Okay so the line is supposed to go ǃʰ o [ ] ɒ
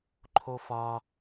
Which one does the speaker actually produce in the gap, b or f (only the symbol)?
f